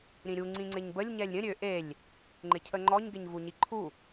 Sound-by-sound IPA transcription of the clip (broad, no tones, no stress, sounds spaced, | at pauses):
ɾ ĩ ɾʲ u ŋ͡ǀ ĩ ŋ͡ǀ ɪ ɲ b ə lʲ ɲ ɛ lʲ ɾʲ ə̃ ɾʲ ø ʔ e lʲ | ŋ͡ǃ ɪ cʰ ə ŋ͡ǃ ɔ ɲ ɡ ɪ ɲ v u ɲ i ǃʰ u